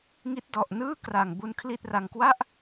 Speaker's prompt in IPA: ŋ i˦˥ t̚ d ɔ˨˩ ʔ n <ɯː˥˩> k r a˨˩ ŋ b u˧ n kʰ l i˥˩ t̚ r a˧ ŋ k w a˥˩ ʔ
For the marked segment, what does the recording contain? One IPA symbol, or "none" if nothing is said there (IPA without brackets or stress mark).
ɯː˥˩